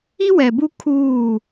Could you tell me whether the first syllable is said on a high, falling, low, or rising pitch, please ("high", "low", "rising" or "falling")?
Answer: high